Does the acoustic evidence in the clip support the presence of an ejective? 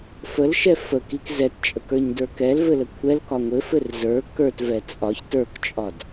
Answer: yes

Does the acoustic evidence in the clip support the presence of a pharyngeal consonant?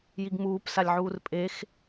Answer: yes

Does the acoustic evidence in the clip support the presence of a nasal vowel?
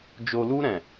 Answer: yes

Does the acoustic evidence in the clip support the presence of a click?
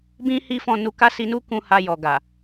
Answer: no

